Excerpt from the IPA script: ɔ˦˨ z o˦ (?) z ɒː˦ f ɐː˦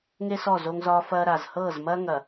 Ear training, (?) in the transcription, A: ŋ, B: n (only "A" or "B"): A